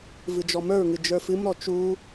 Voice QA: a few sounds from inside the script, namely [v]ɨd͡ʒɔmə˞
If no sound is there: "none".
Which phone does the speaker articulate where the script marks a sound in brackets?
v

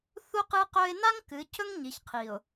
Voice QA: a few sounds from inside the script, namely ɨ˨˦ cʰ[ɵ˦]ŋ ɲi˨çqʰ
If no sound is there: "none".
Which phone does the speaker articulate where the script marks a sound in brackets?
ɵ˦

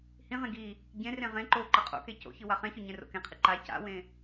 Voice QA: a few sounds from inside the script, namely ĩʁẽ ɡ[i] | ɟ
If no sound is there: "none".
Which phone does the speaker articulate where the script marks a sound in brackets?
i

